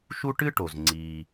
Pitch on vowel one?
high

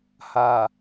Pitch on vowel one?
low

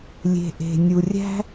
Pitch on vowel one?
low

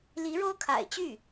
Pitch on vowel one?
rising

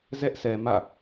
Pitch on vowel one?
high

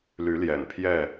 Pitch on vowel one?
rising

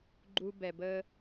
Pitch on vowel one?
low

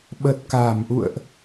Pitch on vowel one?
low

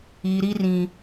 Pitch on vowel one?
high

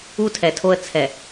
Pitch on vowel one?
high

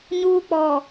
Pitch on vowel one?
high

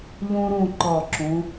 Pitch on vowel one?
high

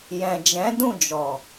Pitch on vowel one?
low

